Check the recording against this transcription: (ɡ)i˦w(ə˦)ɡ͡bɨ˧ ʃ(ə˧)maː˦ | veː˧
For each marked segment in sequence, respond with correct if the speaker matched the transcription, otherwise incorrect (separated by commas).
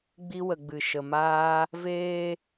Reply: incorrect, incorrect, correct